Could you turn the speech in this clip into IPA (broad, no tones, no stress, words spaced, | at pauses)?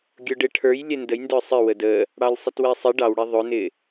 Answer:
ɡʲʊɖɪ ʈʰə˞j lʲɛndəj ndə˞sˤɪ wədə | ɽɑlʲsˤɪtwɛsˤɪ ɖɑwɽɛ ðˤʊnɪ